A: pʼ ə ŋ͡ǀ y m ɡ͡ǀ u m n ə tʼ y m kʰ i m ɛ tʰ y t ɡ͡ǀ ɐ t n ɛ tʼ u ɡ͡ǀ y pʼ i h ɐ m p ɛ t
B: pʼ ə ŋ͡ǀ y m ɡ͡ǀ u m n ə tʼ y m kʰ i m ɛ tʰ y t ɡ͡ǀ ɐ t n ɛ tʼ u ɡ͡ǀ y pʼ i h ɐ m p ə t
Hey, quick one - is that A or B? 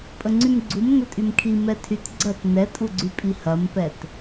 A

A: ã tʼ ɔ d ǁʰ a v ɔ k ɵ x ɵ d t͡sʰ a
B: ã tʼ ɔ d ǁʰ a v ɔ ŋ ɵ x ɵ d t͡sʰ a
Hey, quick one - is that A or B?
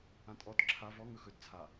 B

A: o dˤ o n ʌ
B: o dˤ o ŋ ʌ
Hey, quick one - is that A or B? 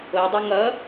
B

